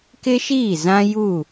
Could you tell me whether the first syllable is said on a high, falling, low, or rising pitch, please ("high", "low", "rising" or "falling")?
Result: high